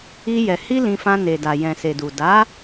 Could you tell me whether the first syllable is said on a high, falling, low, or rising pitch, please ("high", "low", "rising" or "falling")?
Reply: high